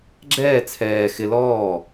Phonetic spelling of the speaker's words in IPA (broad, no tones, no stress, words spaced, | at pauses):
ɡ͡ǁɛː t͡sʰɛː xɪ lɔː